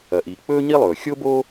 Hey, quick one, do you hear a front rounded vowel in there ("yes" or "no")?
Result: no